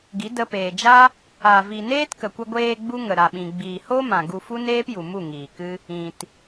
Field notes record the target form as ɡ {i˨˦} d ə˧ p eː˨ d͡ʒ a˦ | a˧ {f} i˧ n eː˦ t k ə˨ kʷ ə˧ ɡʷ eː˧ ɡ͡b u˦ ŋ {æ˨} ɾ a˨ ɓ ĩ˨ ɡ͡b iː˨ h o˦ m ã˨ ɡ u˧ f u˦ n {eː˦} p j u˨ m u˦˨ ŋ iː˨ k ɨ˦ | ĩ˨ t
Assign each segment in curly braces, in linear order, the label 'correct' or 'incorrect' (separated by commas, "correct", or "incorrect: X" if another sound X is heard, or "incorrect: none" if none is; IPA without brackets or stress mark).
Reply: correct, incorrect: v, incorrect: ə˨, correct